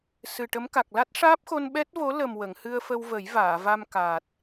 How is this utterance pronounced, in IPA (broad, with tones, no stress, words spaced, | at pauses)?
sɨ˨˩ ʈə˧˥mka˨˩k̚ la˦˥t̚ʂaː˦˥p̚xo˧n ɓɛ˦˥t̚vo˧˥ lə˨˩m wə˨˩˨ŋhɨ˧ə̯fə˧wvə˨˩˦j vaː˨˩˨va˧m kaː˨˩t̚